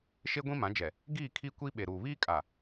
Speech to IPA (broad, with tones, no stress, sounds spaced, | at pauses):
ʃ e˦ ɡʷ ĩ˦ m ã˨˦ d͡ʒ ɛ˨ | ɡ iː˦˨ kʰ i˦ kʷ i˦ ɓ e˨ ɾ uː˨ β iː˦ kʼ a˨